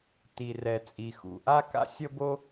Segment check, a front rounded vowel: absent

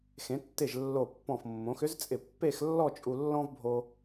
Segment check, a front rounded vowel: present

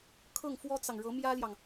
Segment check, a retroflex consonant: present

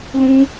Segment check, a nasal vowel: present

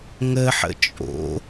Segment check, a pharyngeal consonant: present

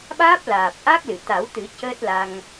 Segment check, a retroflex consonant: absent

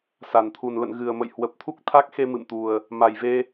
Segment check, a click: absent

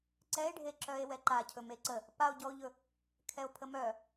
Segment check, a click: present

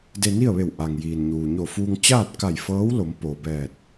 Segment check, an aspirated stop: absent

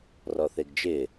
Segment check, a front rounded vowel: absent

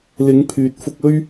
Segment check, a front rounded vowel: present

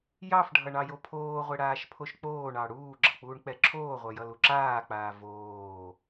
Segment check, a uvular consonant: present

